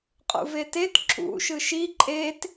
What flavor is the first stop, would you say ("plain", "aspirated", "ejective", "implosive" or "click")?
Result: ejective